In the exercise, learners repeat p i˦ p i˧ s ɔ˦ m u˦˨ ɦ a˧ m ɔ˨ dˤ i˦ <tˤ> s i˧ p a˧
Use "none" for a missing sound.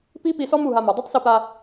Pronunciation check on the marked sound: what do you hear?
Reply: tˤ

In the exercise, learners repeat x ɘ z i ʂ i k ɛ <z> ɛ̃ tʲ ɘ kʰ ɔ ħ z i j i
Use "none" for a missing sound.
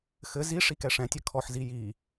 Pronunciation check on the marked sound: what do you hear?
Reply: ʂ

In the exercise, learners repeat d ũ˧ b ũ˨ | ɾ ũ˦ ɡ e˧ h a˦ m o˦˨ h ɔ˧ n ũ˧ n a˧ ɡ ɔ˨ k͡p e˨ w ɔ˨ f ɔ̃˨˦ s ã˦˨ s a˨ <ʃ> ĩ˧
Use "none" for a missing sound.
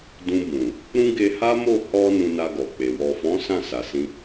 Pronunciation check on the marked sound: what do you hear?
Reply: s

